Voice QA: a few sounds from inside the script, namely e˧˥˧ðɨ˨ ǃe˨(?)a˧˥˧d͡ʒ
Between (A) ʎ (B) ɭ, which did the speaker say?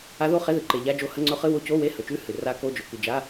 A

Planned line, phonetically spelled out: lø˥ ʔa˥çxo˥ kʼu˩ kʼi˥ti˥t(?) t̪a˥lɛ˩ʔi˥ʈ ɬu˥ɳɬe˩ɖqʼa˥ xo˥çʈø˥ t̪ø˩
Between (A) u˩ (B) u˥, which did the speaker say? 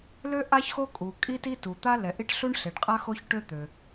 A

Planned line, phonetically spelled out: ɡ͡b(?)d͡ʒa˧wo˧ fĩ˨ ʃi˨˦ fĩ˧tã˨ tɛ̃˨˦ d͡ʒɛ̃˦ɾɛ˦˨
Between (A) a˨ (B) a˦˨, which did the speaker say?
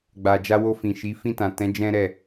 A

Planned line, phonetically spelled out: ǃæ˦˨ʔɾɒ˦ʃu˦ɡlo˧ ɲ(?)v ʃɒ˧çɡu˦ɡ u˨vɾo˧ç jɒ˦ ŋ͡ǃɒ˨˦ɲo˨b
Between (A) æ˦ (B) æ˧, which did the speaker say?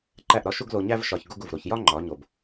A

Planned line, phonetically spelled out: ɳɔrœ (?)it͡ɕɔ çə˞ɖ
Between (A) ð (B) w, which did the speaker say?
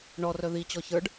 A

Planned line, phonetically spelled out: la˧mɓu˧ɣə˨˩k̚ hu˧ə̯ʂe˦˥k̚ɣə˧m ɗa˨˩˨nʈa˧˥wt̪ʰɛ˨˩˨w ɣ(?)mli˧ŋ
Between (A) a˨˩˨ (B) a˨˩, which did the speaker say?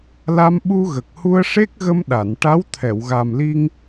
B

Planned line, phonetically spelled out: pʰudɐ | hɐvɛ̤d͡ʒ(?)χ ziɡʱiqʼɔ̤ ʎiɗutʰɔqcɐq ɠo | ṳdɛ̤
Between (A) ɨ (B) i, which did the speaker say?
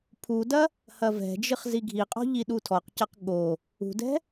A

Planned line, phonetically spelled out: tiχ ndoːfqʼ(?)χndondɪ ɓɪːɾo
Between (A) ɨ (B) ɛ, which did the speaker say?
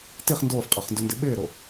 B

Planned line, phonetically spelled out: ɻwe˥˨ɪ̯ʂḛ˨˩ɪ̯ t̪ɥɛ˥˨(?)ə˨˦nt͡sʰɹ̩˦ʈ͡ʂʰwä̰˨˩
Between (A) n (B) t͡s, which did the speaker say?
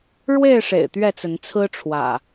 B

